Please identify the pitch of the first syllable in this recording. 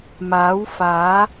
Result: rising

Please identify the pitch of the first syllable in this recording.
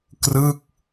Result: falling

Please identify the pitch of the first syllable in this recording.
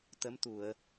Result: rising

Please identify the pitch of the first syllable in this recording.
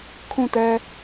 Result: falling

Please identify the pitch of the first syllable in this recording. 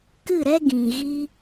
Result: falling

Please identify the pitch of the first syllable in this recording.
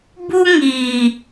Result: high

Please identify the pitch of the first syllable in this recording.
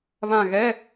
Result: falling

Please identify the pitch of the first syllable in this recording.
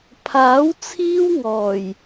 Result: rising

